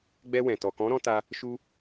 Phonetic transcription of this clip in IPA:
ɡ͡bɛ˧wɛ̃˨ tɔ˨kɔ̃˨˦ɾɔ̃˧ ta˧ | ʃu˦

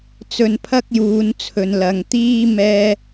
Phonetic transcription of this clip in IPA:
t͡sɵ˧npʰɐ˥k̚juː˨˧nt͡sʰɵ˨n lɐ˨ŋt̪iː˥ mɛː˥

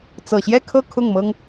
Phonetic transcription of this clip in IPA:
t͡sɤ˨˩ɕjɛ˥˧kʰɤ˥˧ kʰʊ˥˩ŋmɤ˥ŋ

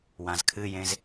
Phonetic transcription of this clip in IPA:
wãzkʰɨjẽz

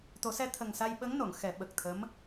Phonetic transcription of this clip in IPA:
t̪o˨˩˦sɛ˧t̪ʰə˨˩ŋ sa˧jɓə˧˥ŋno˨˩˨ŋ xɛ˨˩˦ɓə˨˩k̚t̪ʰə˧˥m

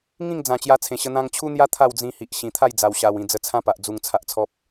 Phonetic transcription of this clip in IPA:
ŋĩ˥˧ŋd͡zã˨˩ t͡ɕja˧t͡sʰẽ˨˩ɕə˧ n̪ã˧ŋt͡ɕʰu˦n̪ja˦ t̪ʰa˥˧wd͡zĩ˧hi˨ʔɕĩ˨˩ t̪ʰa˥˧jd͡za˨˩wɕa˨˩w ĩ˨˩ d͡zə˧t͡sʰã˦pa˨ʔ d͡zu˧ŋt͡sʰa˦ʔt͡sʰɔ˦p̚

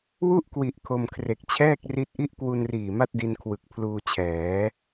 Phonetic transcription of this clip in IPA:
wu˥˩ʔkwi˨˩ʔ kʰo˧mkʰre˨˩k̚ t͡ɕʰɛː˥˩k̚ri˦˥t̚ʔi˥˩ʔ kwu˧nriː˨˩ ma˥˩t̚di˧nkʰwɯ˨˩k̚ pʰluː˧t͡ɕʰɛː˩˦

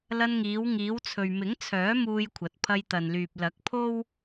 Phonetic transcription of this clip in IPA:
lɐ˧nŋiː˨˧w ŋiː˨˧wt͡sʰɵ˨ɥmɪ˨˥ŋt͡sʰœː˨˥ muː˧jkʷʰɐ˨t̚ pʰɐ˧jt̪ɐ˨nlyː˨p̚ lɐ˨˥k̚pʰo˥w

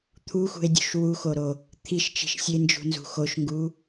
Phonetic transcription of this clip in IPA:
t̪ʰuxṳe̯dʲṳʃ wuxoɾo | t̪ʰiʃt͡ʃi̤ʃ sʲend͡ʒṳnzṳ xoʃŋɡu

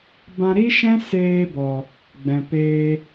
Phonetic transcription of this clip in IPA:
bã˧ ɾi˦ʃɛ̃˦ seː˧bɔ˨ | ɡ͡bɛ̃˨ peː˧

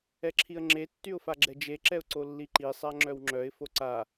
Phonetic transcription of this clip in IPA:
ɛǁʰiə̯ŋ͡ǁe tːyʊ̯faɡ͡ǁɛd͡ʒe ǁɛʊ̯ǀolːiǃi sˤaŋ͡ǁœwŋ͡ǁœɪ̯ foǀa

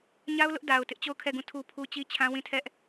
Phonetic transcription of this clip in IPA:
ɲa˦ʊ̯lʊ˦ʔ da˨ʊ̯ tɪ˦ʔt͡ɕo˦˨ʊ̯kʰɛ˦˨ɡũ˦˨ tʰu˦pʰu˦ t͡ɕi˦t͡ɕʰã˦wĩ˦˨tʰɛ˦ʔ

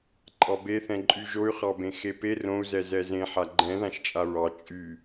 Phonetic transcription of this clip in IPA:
ǃʼɑbeθɛ̃ǃʼy ʒoy̯χɑbẽ xepe rõu̯zɛ zɛzẽ ħaɡ͡ǃɛ̃ðãʃt͡ʃʼa ɹɑ t͡ʃʼy

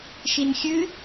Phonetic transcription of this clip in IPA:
ʃinxʲɨ

